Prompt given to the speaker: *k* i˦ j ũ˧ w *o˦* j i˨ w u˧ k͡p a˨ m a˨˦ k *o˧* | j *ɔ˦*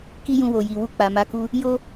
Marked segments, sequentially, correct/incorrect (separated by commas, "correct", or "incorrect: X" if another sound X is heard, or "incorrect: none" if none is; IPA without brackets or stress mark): correct, incorrect: o˨, incorrect: u˧, incorrect: o˦